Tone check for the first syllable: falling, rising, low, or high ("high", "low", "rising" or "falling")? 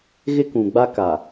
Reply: high